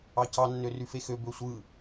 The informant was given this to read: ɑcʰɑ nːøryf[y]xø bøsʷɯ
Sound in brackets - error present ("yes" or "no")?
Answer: yes